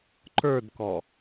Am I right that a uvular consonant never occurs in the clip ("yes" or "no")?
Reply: yes